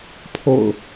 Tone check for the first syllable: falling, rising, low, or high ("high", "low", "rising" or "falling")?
low